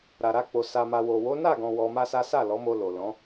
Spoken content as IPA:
ɾ a˨ ɾ a˧ k͡p o˨ s a˨ m a˨ w o˨ w o˨˦ n a˦˨ ɡ ɔ̃˨ w ɔ˧ m a˦ s a˦ s a˦˨ l ɔ˨˦ m o˧ l o˨ l ɔ̃˨˦

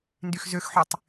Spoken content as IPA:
n d y x z ø x ħ y tˤ

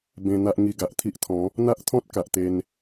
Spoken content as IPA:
b ẽ˧ n̪ a˦ ʔ ŋ i˧ ɡ a˨ ʔ t̪ʰ i˦ ʔ t̪ʰ ɔ̃˨˦ | n̪ a˦ ʔ t̪ʰ ɔ̃˦ t̚ k a˨ ʔ t̪ e˧ n

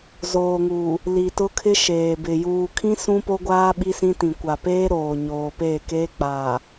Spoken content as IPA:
z oː˨ ŋ uː˨ | l i˨ t ʊ˦ kʰ ɪ˦ ʃ eː˨ b ɪ˨ j uː˨ kʰ ĩ˦ s ũ˦ p o˦ ɡʷ aː˦ ɓ i˦ s ĩ˦ t ĩ˨ kʷ a˨ p eː˦ ɾ oː˨ ɲ oː˨ p eː˦˨ k eː˦ k͡p aː˨

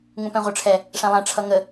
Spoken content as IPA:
ŋ ũ p ɛ̃ ʁʷ ə˞ ʈ͡ʂʰ ɛ | ʂ æ̃ lˠ æ̃ ʈ͡ʂʰ ʌ ŋ ə

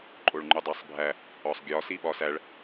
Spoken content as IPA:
ǃʼ o ɭ ŋ͡ǃ u dˤ æ sˤ bʱ æ | ɒ sˤ ɡʲ ɒ s i ɓ ɒ s æ ɭ

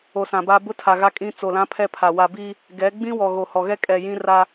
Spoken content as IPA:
o˨ s ã˨ b a˦ b ʊ˦ tʰ a˨ ɣ a˦ kʼ ĩ˦ t͡s o˨ l ã˦ pʰ ɛ˦ pʰ a˨ w a˨ b i˦ | ɡ ɛ˨˦ ɡ͡b ĩ˦ w ɔ˨ ɣ o˨ h ɔ˨ ɣ ɛ˦ kʼ ɛ˨ j ĩ˦ r a˦

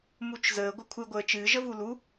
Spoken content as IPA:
m u t͡ʃ z əː ɡʷ ə kʷʰ ɨ ɡʷ əː t͡ʃ ɨː ʒ ə v u l u

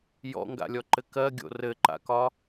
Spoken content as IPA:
j ɔ̰ ŋ ɡ a̰ lʲ ɔ ǃ ɘ k ɜ ɡʲ o̰ r ɘ ǃ a̰ k ɒ

